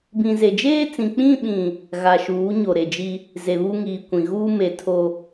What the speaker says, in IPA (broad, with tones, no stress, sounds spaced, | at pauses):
b ĩ˨ z e˨ d͡ʒ eː˦ t͡s ĩ˨ k͡p ĩ˦˨ ɓ ĩ˨ | ɣ a˨ ʃ uː˨˦ ɲ o˨ ɾ e˨ d͡ʒ i˦ | z e˨ β u˦ ŋ iː˨ kʷ ĩ˨ ɣ uː˦ m e˨ tʰ o˦